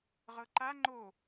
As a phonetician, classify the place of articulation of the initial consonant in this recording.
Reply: uvular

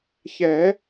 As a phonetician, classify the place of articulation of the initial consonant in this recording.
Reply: palatal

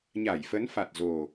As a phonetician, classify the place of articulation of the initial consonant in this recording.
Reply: palatal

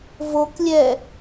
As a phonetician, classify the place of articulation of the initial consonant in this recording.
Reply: labial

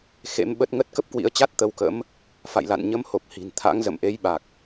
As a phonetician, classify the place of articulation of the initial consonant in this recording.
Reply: velar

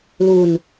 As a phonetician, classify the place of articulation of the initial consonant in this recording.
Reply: alveolar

